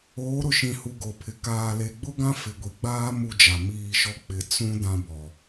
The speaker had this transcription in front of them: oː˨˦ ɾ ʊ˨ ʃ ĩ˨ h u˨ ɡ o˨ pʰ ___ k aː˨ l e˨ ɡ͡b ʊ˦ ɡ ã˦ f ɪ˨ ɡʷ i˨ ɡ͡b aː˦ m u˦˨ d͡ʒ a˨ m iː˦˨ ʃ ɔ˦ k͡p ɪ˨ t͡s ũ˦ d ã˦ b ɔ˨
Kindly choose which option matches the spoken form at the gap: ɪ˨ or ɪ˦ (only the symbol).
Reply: ɪ˨